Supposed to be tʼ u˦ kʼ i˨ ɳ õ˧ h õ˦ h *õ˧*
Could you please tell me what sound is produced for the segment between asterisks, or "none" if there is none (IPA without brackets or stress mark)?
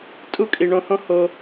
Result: o˧